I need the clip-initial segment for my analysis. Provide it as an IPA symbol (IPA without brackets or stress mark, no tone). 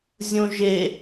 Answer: zʲ